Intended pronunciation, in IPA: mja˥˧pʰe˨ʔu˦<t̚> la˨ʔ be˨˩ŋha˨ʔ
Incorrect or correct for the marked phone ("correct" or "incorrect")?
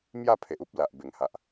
incorrect